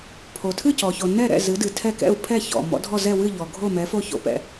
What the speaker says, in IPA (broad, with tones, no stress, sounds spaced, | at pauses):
pʰ o˩ tʰ ɨ˥˨ c ɔ˩ ç o˩ n ɛ˥˨ ɾ ɛ̰˥˨ z ɨ˩˥ d ɨ˩ tʰ ɛ˥˨ k ɛ̰˥˨ u̯ pʰ ɛ˥˨ ç ɔ̰˩ m ɔ̰˩˥ dʱ ɔ˥˨ z ɛ˥˨ w ɨ˥˨ ʎ ɔ˩ ɡʱ o˥˨ m ɛ˩˥ f o˥˨ ç o̰˩ p ɛ̰˩